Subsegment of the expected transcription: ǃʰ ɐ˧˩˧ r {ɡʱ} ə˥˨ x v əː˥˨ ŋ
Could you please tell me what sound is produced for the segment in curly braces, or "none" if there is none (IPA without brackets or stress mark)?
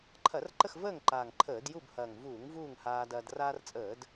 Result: ǃ